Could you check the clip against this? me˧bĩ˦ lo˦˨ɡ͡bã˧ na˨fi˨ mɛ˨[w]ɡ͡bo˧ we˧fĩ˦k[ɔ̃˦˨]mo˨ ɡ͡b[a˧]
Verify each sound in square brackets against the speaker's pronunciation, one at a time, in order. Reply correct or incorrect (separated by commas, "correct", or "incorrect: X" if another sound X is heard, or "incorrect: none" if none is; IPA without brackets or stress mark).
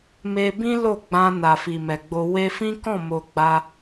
incorrect: none, correct, correct